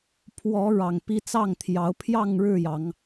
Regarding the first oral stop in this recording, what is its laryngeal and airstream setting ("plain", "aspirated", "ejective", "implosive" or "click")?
aspirated